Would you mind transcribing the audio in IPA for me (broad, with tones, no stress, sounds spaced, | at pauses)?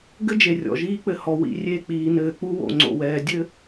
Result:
ɡ ɘ˦ d͡ʒ e˨ rʲ ɔ̰˨ ʒ iː˦ k͡p ɘ˨ h ɔ˨ w ḭ˨ rʲ e˦˨ k͡p iː˨ n ɘː˨ k͡p u˦ w o̰˨ ŋ͡ǀ o̰˨ w ɛː˨ dʲ ɘ˦